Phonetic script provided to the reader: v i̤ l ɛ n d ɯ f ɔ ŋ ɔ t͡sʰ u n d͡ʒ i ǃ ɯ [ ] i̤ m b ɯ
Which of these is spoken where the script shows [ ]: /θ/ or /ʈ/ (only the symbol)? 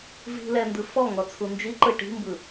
ʈ